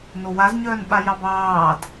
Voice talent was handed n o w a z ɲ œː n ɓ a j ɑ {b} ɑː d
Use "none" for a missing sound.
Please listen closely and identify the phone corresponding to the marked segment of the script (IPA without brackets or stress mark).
b